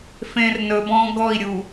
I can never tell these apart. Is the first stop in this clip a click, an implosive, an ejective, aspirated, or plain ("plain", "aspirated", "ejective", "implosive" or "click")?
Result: plain